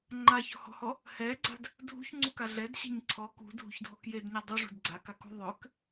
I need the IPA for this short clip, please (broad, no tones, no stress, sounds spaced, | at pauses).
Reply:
ŋ͡ǃ a ç ɔ̤ h ɔ̤ h ɔ | h ɛ ɡ͡ǀ a̤ d | dʱ ṳ ç ŋ͡ǀ u k a ɮ ɛ d ɕ ɛ̤ ɲ ǀʰ ɔ k ṳ dʱ ṳ ç dʱ ɔ k j e d ɲ a dˤ u ʐ ṳ d ɡ͡ǀ a k a k ṳ ðˤ ø k